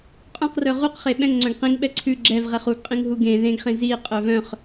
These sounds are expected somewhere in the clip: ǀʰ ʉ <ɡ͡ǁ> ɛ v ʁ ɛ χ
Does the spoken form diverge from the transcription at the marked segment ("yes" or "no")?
no